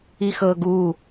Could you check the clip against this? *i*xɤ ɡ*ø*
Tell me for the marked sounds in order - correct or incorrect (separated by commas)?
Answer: correct, incorrect